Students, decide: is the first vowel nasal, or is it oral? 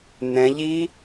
nasal